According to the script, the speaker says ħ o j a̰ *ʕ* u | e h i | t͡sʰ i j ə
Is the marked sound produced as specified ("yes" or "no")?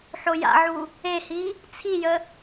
yes